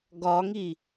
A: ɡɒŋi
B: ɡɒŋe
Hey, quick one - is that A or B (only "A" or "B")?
A